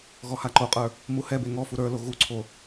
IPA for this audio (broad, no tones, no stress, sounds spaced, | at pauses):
ɣ ɔ h a ǃ o qʼ ə˞ | m u h ɛ b e ŋ ɔ f u ɾ ə˞ l o ɣ u ǀʰ o